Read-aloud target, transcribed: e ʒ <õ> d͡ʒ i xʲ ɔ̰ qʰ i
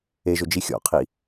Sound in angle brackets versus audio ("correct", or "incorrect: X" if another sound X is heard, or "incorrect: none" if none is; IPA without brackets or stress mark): incorrect: o